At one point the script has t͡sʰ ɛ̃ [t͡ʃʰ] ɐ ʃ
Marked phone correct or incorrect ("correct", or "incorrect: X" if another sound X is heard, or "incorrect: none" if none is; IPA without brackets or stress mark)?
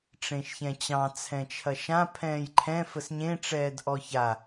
correct